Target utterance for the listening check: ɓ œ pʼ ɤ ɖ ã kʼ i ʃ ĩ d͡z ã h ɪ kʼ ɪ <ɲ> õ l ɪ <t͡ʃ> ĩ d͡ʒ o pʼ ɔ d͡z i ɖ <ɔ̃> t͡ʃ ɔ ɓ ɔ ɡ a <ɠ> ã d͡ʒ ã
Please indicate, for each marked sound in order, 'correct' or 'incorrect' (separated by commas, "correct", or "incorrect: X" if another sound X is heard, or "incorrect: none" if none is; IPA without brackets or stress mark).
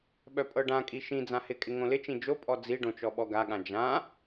incorrect: ŋ, correct, incorrect: õ, correct